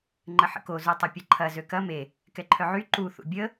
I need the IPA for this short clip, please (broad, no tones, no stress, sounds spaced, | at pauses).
ŋ͡ǃ ə ħ ə̰ k o z u tˤ ɐ pʲ ɐ ǃʰ ɐ z ø k ɐ m e | k ɛ ǃʰ œ ʕ y ǃ u θ ṵ bʲ ə